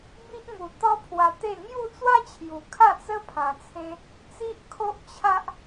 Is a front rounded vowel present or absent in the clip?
absent